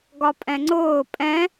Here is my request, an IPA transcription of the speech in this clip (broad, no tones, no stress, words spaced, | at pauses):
ɡɒpʼɛ̃ŋ͡ǀʊː pʼɛ̃